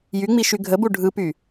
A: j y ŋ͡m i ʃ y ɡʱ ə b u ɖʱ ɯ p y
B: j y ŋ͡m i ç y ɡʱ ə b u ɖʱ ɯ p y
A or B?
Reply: A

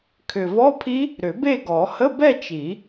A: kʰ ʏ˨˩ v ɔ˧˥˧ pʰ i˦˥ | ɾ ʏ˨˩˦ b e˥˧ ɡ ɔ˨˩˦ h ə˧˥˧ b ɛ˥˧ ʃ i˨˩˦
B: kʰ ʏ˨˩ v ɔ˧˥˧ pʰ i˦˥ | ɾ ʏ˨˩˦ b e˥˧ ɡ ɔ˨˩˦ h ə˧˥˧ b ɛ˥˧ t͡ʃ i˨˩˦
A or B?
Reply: B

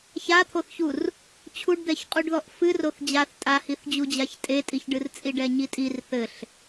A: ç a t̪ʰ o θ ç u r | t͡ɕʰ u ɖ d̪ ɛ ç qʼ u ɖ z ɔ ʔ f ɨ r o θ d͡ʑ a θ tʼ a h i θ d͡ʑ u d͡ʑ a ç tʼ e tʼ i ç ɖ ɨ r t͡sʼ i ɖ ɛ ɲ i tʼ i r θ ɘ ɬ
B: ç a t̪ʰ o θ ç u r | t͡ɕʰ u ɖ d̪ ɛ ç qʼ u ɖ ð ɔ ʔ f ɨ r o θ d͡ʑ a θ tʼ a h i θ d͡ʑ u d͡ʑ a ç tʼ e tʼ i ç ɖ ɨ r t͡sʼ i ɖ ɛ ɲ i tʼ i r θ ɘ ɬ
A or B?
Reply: B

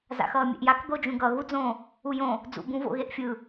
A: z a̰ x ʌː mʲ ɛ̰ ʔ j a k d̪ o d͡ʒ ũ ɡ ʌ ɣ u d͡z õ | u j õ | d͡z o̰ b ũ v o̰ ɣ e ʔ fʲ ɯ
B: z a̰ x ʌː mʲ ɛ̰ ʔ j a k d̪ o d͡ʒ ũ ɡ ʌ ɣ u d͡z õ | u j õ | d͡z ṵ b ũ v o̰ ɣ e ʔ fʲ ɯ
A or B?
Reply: B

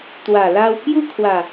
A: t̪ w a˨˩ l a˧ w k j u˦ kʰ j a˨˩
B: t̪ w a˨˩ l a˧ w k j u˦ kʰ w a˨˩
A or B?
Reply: B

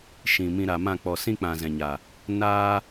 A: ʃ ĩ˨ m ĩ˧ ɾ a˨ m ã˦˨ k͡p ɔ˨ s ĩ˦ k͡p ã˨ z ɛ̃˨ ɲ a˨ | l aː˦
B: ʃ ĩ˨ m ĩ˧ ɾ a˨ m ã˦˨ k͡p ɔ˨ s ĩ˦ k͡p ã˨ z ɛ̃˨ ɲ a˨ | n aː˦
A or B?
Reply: B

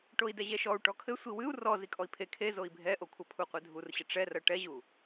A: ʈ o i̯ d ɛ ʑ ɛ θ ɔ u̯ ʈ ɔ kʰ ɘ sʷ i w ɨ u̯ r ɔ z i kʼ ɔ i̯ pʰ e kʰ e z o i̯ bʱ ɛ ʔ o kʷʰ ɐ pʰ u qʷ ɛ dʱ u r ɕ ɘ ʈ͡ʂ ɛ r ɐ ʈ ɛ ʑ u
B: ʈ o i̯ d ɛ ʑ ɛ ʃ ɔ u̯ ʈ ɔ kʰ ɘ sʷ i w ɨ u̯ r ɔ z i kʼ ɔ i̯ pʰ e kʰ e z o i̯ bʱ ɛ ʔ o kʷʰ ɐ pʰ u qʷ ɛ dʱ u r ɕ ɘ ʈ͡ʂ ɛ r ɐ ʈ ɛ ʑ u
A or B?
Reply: B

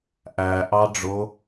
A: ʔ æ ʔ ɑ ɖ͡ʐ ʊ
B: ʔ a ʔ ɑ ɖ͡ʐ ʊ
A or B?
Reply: A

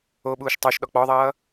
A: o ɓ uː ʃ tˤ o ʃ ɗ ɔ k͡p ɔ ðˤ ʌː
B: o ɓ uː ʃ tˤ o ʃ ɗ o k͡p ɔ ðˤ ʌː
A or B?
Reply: A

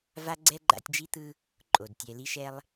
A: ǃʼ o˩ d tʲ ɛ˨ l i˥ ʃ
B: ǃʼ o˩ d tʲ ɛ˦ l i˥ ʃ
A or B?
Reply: A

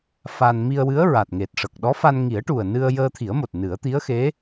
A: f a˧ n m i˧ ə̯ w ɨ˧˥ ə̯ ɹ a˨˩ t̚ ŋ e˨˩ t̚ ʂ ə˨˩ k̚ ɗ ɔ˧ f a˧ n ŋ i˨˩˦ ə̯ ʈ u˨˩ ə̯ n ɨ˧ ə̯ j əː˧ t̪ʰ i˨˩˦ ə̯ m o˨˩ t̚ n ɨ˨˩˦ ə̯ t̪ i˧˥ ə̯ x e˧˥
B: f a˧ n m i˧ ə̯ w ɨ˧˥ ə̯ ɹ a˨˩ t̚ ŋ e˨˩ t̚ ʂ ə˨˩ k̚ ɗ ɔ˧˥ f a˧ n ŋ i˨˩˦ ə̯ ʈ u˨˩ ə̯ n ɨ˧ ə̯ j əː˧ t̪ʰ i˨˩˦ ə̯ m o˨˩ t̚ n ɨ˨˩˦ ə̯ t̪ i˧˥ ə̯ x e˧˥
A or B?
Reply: B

